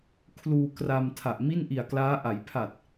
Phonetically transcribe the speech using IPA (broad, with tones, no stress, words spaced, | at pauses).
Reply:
kʰluː˧kra˧m tʰa˨˩ʔmi˥˩nʔi˨˩a̯klaː˦˥ ʔa˩˦jpʰa˨˩t̚